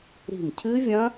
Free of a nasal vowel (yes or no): no